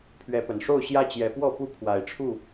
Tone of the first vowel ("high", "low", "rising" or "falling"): rising